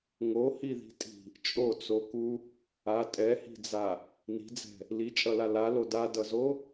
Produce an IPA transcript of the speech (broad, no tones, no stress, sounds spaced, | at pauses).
ŋ o h i ð i̤ tʼ i̤ | t͡ʃʼ o t͡s o k u | a tʼ ɛ h i̤ d͡z a | n i̤ d͡z ɛ̤ | l i t͡ʃʼ ʌ l a l a l o d a d ʌ z o